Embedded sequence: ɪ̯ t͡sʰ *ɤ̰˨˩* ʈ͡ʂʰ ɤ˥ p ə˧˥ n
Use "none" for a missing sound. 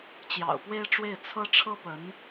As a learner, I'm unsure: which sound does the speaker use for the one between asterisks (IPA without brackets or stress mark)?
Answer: ɤ˥